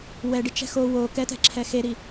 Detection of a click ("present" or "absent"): present